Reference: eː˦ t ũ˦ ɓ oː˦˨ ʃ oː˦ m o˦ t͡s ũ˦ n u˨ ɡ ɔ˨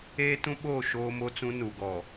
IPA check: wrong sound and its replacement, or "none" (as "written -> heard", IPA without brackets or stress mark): none